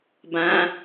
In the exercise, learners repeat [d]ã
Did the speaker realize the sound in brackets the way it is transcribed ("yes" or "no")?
no